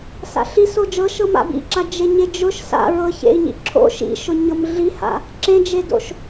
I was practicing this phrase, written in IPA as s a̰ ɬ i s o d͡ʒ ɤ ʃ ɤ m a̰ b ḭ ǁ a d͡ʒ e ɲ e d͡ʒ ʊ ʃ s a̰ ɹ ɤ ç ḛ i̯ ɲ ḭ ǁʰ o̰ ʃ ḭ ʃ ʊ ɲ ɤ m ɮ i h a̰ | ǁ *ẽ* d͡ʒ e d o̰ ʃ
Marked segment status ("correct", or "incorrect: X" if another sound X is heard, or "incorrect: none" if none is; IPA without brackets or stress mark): correct